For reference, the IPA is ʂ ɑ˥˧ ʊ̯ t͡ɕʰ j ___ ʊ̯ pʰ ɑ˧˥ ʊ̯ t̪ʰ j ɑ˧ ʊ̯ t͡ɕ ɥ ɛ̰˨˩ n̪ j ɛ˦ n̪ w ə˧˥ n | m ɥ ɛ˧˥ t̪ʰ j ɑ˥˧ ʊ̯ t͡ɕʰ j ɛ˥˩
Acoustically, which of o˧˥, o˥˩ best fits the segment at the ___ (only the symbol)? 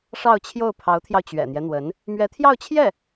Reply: o˥˩